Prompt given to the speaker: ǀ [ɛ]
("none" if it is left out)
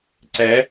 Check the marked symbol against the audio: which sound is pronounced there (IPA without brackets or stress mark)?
ɛ